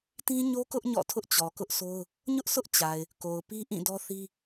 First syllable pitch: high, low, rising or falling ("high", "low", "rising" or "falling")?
high